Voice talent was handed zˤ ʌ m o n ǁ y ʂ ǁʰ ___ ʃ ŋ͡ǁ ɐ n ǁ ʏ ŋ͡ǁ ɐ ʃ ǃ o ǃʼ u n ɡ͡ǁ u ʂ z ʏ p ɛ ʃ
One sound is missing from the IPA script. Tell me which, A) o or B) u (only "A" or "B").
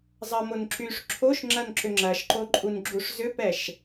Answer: A